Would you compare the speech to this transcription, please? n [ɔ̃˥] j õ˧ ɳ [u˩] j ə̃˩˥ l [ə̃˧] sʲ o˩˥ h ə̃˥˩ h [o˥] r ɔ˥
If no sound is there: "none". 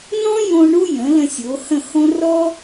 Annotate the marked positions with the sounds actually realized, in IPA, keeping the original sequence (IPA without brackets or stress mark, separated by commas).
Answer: ɔ̃˥, u˥, ə̃˧, õ˥